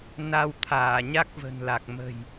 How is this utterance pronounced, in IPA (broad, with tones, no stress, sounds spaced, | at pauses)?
n a˧ w t̪ʰ aː˧˩ ɲ a˦˥ k̚ v ə̤˨˩ n l a˨˩ k̚ m ə̤˨˩ j